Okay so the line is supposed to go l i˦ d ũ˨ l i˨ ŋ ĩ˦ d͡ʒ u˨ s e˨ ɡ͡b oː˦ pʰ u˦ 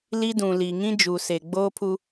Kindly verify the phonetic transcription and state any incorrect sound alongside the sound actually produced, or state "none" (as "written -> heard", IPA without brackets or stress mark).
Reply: none